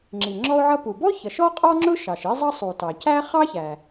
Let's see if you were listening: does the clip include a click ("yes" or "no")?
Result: yes